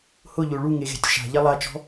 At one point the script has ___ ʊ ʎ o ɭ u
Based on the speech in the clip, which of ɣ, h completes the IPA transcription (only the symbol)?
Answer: h